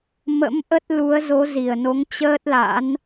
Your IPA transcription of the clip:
m ə̰˧˥ m ʔ ə˦˥ t̚ l u˨˦ ə̯ z o˨˦ z i˨˩ ə̯ n o˨˦ ŋ t͡ɕ əː˦˥ t̚ l a̰˧˥ n

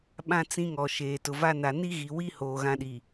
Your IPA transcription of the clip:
ɓ ã˦ t͡s ĩ˦ ŋ ɔ˨ ʃ eː˨ t ʊ˨ v a˦ n a˨ n i˦ ɣ i˨ w i˦ h oː˨ ɣ ã˦ ɗ i˨

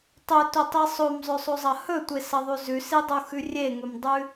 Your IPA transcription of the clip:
tˤ ɵ t ɵ tˤ i sˤ o m zˤ ɵ sˤ o zˤ ɐ h ɵ tʷ e s ɐ ðˤ ʉ z ʉ s i dˤ o x ʉ rʲ e ŋ ɵ m dˤ ʉ

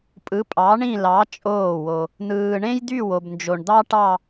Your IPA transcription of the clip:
pʼ ɯ˨˥ pʼ ɑ˨˥ ɳ ĩ˥˧ l ɑ˨˥ t͡ʃʼ oː˥˩ w o˨ | n̪ ɯː˨ ɳ ẽ˥ j d̪ y˥˧ w o˨ b n d͡ʒ o˨ ɳ d̪ ɑ˥ ʈ ɑ˥˧

